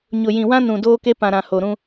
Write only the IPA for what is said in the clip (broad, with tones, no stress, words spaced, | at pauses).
ɲʊ˨jĩ˨wã˦nũ˨ doː˦ke˦ pã˨ɾã˨ ho˨ɾũ˦